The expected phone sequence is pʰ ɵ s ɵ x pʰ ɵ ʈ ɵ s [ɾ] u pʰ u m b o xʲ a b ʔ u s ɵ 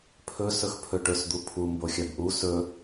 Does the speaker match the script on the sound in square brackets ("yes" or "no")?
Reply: no